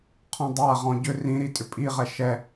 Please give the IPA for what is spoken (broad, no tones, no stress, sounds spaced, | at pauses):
qʰ ɔ̃ dˤ a ʁ ɔ̃ ɟ ʏ r ĩ ɾ i tʼ ʏ pʼ i ʁ ɛ ʃ ɛ